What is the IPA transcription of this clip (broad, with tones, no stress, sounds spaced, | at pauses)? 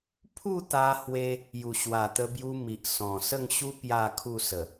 pʰ u˥˧ t̪ a˧ h w e˧ | j u˨˩ ɕ w a˨˩ t̪ ə˧ b j u˧ m i˨ ʔ s ɔ̃˨˩ s ə˥˧ ŋ ɕ u˦ p j a˥˧ kʰ u˥˧ s ə˨˩